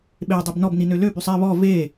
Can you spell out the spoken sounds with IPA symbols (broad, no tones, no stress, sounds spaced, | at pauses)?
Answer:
ɓ e dˤ y b n ɔ b n i n ø l ø b y sˤ ɛ β ɔ v e